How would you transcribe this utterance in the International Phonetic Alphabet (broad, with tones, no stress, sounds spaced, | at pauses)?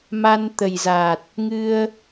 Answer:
m a˧ n t̪ ə˨˩ j z a˨˩ t̚ | ŋ ɨ˧ ə̯